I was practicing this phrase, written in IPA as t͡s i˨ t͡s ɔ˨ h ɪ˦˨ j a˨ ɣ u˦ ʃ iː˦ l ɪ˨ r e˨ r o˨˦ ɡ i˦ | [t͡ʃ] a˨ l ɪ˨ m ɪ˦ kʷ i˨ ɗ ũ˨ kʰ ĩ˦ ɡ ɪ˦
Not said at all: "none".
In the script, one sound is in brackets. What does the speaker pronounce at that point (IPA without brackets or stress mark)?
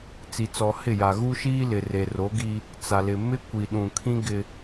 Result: t͡s